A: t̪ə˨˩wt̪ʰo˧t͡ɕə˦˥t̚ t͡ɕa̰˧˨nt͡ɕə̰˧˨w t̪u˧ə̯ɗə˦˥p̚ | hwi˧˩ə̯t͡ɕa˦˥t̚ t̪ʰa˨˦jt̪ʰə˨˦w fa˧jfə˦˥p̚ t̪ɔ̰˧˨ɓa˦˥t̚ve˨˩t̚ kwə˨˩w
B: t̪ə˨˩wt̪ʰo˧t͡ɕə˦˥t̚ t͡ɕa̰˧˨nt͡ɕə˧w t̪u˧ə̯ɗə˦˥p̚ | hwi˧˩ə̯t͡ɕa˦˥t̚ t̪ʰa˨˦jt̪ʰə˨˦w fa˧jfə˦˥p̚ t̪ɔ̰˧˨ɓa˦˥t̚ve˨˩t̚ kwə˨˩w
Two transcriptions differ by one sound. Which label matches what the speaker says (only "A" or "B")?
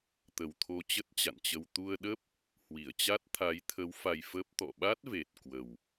B